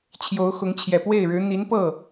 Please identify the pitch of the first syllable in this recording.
rising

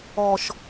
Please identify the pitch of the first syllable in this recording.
low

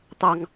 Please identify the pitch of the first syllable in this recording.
high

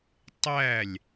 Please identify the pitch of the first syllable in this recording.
falling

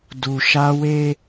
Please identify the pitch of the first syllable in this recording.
low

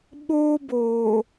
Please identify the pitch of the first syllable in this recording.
high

